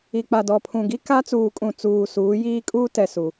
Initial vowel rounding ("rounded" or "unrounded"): unrounded